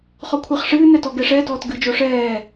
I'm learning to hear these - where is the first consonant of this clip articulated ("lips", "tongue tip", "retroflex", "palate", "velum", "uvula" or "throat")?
uvula